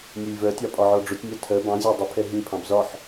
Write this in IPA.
nʲɛlʲvɜtʲɑ pʼɒʕɔɖ͡ʐʊtʲnʲɑ tʰɜ bɑ̃zʲɒ dˤəpʰɛ ɦĩpʰɑ̃b zɒħ

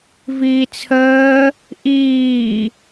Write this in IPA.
viːt͡sʰəː | ʔiː

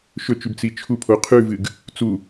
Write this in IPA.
ʃɵt͡ʃʉb t͡sit͡ʃʰupʰo qʰʉvɨɡ | t͡su

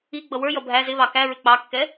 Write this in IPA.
i ɡ͡bʌwə˞jʌ bʱæ zɪβɑ kæ ɹɪk͡pɑkːɛ

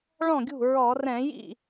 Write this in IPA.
ɭɔ̃˥˩ɡʲṳ˥˩ɹɔ˧˩˧ rɛ̃˧˩˧jḭ˥˩

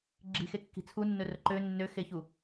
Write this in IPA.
ɡ͡ǁi̤xekːi̤ t͡sʰunːɵrɵ ǃø nːøxeçu

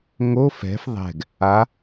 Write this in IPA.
ŋo fɛ̤f ðˤɛ̤ɡ | a

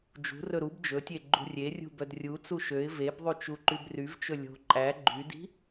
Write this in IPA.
d͡ʒṳrɵ ɾub d͡ʒɵtʲe ɡ͡ǃṳrʲerʲṳ bœdrʲut͡su ʃøɪ̯ vebðˤy t͡ʃuǃybryvt͡ʃɵ lʲo̤ ǃʼæ ɡ͡ǃydi̤

